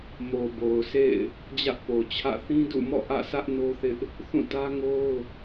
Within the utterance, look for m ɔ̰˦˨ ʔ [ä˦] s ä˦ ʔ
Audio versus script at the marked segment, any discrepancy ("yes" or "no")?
yes